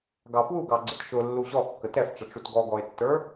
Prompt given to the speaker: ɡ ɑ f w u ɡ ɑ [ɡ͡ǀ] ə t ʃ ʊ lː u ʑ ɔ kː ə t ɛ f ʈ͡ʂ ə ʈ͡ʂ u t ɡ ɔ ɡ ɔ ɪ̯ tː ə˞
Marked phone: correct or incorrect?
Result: correct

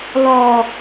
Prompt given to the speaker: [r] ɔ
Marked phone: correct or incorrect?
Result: incorrect: l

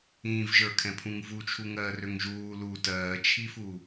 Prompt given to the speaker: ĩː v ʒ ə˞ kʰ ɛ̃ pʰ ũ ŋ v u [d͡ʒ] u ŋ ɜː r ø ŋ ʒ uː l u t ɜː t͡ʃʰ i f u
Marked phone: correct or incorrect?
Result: incorrect: t͡ʃʰ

